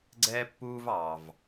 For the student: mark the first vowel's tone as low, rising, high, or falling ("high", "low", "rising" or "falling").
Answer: high